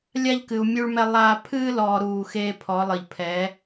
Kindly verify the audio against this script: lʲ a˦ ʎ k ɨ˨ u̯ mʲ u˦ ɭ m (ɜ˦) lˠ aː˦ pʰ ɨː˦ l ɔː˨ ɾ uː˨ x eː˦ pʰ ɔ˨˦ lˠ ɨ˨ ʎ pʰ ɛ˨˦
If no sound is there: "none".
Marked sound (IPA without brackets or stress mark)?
ɛ˦